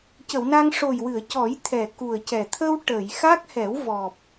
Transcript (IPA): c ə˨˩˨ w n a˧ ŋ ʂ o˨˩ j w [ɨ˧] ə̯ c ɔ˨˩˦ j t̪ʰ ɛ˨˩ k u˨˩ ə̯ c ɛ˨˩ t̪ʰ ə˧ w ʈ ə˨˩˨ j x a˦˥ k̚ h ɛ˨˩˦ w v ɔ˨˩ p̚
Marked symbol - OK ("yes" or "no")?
no